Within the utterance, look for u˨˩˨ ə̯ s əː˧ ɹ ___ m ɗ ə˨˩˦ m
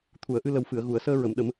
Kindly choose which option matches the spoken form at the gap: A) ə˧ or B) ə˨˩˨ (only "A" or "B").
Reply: B